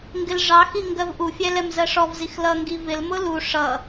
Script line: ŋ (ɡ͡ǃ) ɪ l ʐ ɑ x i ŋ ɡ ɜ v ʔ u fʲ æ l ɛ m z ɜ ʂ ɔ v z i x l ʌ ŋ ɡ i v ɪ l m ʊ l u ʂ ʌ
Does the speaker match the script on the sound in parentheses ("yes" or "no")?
no